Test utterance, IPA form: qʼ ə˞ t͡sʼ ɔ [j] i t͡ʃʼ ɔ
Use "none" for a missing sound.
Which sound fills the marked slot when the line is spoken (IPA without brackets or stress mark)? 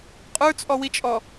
w